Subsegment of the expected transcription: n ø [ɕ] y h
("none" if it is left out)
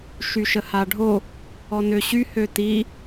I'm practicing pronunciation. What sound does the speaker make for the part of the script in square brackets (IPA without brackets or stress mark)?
ɕ